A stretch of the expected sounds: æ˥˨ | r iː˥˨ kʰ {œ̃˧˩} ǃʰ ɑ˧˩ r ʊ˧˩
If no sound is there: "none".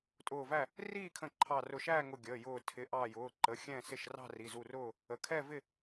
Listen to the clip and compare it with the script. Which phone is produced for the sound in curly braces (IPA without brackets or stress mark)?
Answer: ə̃˧˩